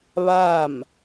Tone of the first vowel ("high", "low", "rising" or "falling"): falling